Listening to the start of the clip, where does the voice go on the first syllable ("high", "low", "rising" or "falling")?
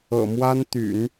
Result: low